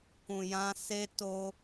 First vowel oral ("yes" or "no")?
no